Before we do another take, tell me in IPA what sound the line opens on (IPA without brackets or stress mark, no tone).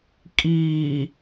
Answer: kʼ